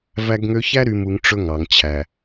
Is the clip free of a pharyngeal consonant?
yes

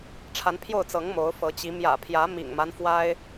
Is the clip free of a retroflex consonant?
no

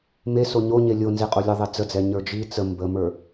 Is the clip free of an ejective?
no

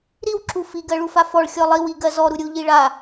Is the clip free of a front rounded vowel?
yes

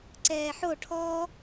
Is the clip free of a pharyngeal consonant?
no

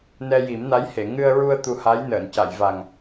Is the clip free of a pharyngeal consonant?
yes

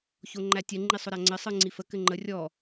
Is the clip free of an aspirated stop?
yes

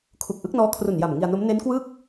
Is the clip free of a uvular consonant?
yes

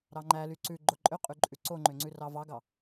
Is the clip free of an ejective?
no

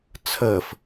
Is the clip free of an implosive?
yes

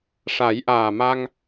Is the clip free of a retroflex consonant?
no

